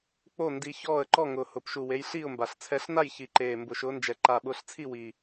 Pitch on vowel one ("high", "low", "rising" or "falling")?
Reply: falling